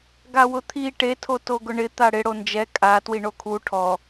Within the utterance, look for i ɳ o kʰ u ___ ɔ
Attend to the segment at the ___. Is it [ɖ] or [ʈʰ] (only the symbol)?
ʈʰ